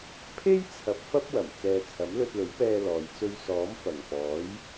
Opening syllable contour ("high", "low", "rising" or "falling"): high